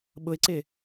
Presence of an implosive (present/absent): present